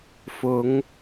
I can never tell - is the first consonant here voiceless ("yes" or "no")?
yes